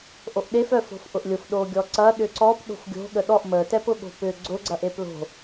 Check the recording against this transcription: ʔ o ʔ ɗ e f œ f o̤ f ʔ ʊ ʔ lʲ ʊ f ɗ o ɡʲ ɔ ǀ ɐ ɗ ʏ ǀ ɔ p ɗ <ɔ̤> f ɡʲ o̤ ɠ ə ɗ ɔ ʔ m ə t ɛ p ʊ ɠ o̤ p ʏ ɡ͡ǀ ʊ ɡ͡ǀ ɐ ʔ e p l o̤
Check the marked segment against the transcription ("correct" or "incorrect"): incorrect